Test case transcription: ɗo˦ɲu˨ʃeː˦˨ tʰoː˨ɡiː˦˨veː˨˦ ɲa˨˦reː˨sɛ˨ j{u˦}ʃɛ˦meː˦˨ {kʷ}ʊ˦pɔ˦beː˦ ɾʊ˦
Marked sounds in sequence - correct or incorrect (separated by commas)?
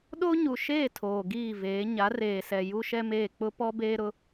correct, incorrect